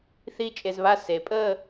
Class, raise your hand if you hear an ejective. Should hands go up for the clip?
yes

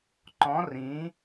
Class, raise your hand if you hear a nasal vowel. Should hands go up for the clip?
yes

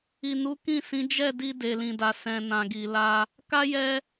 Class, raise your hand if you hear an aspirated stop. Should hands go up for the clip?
no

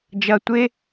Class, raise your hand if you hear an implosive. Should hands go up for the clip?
no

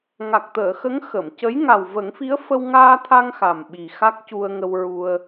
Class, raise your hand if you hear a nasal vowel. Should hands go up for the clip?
no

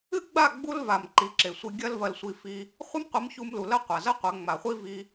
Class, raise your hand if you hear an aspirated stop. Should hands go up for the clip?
no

